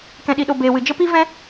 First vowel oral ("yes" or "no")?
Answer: no